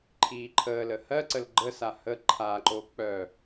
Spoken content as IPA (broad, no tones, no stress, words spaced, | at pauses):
ǃʰiːǃʰəːlə hɜǀəl ɡ͡ǃəsa hə ǃʰaǃo k͡pœ